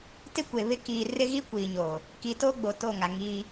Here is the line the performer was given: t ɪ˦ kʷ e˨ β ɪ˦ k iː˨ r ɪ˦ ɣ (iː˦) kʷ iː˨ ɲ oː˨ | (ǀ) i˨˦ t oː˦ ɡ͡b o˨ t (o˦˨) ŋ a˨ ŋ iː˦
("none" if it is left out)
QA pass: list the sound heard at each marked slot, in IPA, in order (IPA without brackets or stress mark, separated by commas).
i˦, k, o˦˨